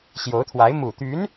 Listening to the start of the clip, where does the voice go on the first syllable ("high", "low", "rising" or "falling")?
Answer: rising